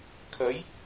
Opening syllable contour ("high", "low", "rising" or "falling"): rising